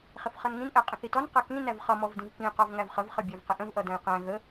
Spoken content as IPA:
χ ɪ f χ ʌ n ŋ ĩ n ʔ æ qʼ ə̃ θ i t ɔ n q ʌ k ĩ n æ v χ ʌ m ɔ v d ĩ v k ĩ q ɔ v ŋ æ v χ ə v χ ə bʲ æ v q ɪ ʔ ə̃ v ʔ ʌ d æ̃ j q æ̃ ɣ ə

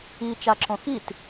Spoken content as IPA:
i t͡ʃ a ǁ õ x i t

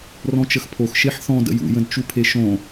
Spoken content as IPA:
r ɔ̃ t͡ʃ ə x pʰ o x ʃ e ħ θ ɔ̃ d ə̰ j ṵ j ə̃ d t͡ʃ u pʰ e ʃ õ

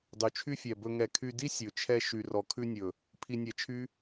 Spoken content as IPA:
dˤ y˨ t͡ʃʰ y˧ fʲ ɛ˨ b ɵ˧ ŋ ɛ˧ kʰ y˧ d i˦ sʲ ɵ˨ t͡ʃʰ ɛ˧ ʃ y˨ r ɔ˨ kʰ ʉ˧ nʲ ɵ˨ | pʰ i˧ nʲ ɛ˧ t͡ʃʰ y˦

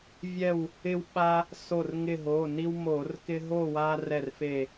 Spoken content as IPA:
vʲ ɛ˧˩ w | ɪ˦ w ɓ a˦ | s o˧˩ r ŋ ɪ˧˩ ɦ o˩˧˩ n i˦ w m o˧˩˧ r k ɪ˦ ɦ o˥˨ w a˦ r ɛ˥˨ r f e˥˨

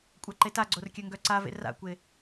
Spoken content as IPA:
kʷʼ a ǃ e t a ɡ͡ǀ o r kʲ œ ŋ ɡ œ ǀ a v ḛ r a̰ kʷ e

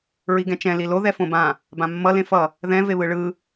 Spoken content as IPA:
ɹ i ɡ ɛ̃ t͡ʃ ɛ̃ l i l o ð ɛ f õ b ã | b ã mː ʌ l ẽ f ʌ | ð ɛ̃ v e β ɯ ɭ ɯ

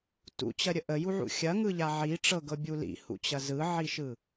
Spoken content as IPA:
t ṵ t͡ɕ ɐ ɾʲ ə ʔ ə j u ʕ ṵ xʲ ɐ ŋ ɯ ʎ a ʕ i ʈ͡ʂ ɤ ɡ ɤ bʲ u l ḭ h ṵ t͡ɕ ɐ z ɯ ʕ i ʃ ɯ

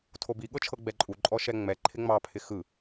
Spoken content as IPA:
tʰ o b i ɠ ɤ t͡ʃʰ ɤ ɡ͡b ɛ ǃʼ u ǃʼ ɔ ʃ ɛ ŋ͡m ɛ ǃʰ ɪ ŋ͡m ɑ pʰ ɪ x ɯ

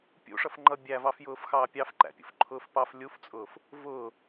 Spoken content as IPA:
pʲ ṵ ʂ ʌ f ŋ͡ǃ ʌ bʲ æ v ɑ f j ʊː f x ɑː pʲ ɑ f ǃ æ̰ pʲ ṵ f ǃʰ ʊː f p ɑ f lʲ u f t͡sʼ ʊː f | v ʊː

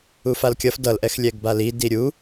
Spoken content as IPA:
u f a l kʲ ʌ f d ʌ l ʔ ɛ x lʲ ɛ ɡ b a l i d i ɾʲ u

